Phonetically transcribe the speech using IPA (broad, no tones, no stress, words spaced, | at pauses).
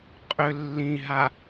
qʼʏ lːĩɦa